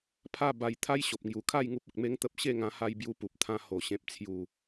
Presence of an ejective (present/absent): absent